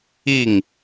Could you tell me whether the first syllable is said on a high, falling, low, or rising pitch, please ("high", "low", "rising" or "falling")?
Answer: falling